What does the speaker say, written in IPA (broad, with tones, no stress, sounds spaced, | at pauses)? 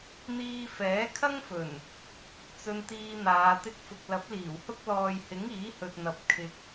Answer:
n̪ iː˧ f ɛː˨˥ kʰ ɐ˥ ŋ f ɵ˨˩ n | t͡s ɵ˧ n t̪ iː˧ n̪ aː˨˧ t̪ ɪ˧ k̚ f ʊ˨ k̚ l ɐ˨˥ p̚ l iː˨˩ w h ʊ˥ k̚ l ɔː˨ j h ɪ˨˥ ŋ iː˨˥ h ɵ˨ t̚ n̪ ɐ˨ p̚ kʰ ɪ˨ k̚